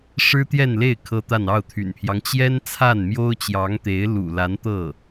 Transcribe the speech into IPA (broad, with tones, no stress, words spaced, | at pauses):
ʂɻ̩˥t̪jɛ˥˧nle˥˩ɪ̯ kʰɤ˥t̪a˥˧n ɑ˥˩ʊ̯t̪ʰy̰˨˩npʰjɑ˦ŋ t͡ɕjɛ˥n t͡sʰa˥˩nmjo˥ʊ̯t͡ɕjɑ˧˥ŋt̪e˧˥ɪ̯ lṵ˨˩la˧˥n t̪ɤ˥˩